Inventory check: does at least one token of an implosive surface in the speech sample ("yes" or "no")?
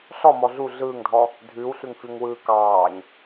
no